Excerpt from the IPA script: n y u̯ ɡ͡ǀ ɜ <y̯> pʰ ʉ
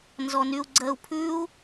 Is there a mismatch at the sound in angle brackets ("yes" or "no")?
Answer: yes